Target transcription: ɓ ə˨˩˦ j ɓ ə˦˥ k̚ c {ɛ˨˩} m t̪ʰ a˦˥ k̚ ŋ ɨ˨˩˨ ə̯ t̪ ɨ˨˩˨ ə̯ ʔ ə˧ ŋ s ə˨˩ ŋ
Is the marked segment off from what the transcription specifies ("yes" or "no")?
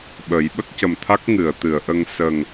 yes